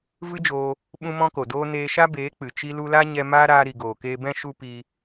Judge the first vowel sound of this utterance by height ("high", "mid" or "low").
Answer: high